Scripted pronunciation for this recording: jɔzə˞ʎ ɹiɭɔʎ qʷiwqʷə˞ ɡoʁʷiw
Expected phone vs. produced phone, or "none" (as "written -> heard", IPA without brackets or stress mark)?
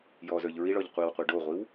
ɡ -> ɖ